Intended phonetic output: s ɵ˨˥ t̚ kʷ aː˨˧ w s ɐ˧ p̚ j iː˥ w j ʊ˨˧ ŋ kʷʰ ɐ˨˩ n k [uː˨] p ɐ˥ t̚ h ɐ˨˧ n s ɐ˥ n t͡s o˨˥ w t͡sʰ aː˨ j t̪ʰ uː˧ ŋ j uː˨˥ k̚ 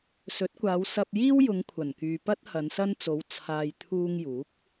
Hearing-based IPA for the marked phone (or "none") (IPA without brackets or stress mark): yː˨